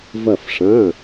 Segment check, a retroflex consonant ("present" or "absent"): present